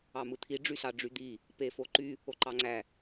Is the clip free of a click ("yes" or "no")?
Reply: no